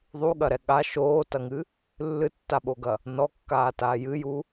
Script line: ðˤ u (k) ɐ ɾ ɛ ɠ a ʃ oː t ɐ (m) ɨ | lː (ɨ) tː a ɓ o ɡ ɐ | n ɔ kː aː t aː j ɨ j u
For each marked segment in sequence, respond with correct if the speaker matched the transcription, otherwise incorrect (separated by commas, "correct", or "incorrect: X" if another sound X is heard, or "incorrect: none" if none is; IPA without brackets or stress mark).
incorrect: ɠ, incorrect: ŋ, correct